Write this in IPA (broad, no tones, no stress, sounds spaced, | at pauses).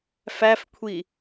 f æ f kʷʰ i